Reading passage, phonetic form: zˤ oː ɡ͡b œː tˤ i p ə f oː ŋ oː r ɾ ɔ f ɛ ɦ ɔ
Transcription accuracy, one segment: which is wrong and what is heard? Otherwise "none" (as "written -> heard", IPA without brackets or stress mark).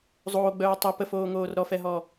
none